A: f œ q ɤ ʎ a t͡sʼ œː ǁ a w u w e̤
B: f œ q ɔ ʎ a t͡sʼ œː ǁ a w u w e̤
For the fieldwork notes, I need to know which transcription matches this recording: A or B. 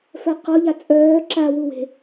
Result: B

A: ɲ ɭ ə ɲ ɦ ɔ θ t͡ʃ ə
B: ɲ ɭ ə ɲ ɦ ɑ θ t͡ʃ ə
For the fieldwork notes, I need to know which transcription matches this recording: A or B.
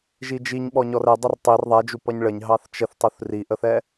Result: B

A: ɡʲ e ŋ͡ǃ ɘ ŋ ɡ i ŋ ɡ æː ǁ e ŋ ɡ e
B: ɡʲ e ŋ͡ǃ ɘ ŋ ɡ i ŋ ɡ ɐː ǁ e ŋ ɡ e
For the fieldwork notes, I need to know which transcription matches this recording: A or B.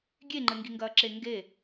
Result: B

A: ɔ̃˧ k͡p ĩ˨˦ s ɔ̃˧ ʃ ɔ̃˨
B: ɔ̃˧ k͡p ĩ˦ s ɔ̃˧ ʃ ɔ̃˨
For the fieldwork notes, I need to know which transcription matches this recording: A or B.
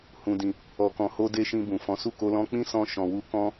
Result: B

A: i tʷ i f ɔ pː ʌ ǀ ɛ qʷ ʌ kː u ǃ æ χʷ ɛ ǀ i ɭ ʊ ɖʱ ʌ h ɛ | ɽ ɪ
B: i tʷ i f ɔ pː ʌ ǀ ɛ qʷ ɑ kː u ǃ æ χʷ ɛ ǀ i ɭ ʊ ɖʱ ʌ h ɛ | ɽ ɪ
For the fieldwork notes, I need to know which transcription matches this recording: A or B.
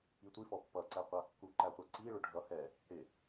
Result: B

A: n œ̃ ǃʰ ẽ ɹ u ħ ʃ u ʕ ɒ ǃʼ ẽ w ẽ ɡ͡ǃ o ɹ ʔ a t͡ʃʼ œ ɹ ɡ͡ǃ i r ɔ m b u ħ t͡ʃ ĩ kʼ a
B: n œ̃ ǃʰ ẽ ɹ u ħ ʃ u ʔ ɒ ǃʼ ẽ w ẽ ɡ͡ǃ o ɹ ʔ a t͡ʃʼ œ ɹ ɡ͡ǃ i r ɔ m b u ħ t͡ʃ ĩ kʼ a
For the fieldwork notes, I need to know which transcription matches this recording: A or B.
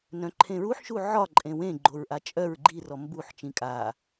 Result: A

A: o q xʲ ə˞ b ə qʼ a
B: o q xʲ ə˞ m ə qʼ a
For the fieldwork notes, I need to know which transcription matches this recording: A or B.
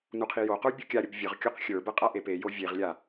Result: A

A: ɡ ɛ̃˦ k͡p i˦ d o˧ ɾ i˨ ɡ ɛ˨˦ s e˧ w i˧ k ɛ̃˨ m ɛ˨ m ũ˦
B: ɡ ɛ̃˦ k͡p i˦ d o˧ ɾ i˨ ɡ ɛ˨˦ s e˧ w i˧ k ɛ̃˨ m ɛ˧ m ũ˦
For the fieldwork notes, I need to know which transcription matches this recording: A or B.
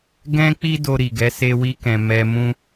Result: B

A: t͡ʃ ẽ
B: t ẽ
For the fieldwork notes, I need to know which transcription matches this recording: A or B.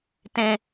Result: B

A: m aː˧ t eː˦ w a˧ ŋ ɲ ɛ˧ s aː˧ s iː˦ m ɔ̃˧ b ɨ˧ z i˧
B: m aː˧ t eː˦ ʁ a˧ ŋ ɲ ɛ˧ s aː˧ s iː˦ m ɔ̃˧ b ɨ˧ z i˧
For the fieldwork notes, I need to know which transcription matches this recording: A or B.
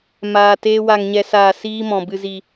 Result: A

